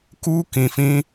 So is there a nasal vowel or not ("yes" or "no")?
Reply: yes